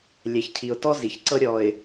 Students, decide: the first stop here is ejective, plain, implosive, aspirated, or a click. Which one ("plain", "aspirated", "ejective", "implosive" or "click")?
aspirated